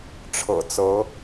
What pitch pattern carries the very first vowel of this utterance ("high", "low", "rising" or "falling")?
low